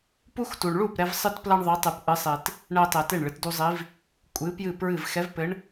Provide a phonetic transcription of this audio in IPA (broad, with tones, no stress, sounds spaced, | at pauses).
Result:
p u˦ x t u˨ ɳ ɭ u˥˩ p ɾ ɛ˦ v sˤ ɨ˦ t p l ɐ˦ ɳ ðˤ e˨˦ tˤ ɨ˨ p ʔ ɨ˨˦ sˤ e˨ t | ɳ ɛ˦ tˤ e˨ t e˥˩ ɳ ɭ ɨ˨ t d u˦ zˤ i˨˦ v | kʷʼ ɨ˨˦ p j ɨ˥˩ p ɹ ɨ˥˩ v x ɛ˨˦ v p ɘ˨˦ ɳ